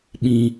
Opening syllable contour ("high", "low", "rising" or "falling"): low